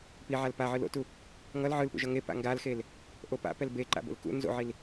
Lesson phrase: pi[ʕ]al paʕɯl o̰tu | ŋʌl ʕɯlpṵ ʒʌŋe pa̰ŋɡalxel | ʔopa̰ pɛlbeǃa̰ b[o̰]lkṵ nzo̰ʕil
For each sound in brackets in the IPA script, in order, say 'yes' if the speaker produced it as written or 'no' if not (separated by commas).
yes, yes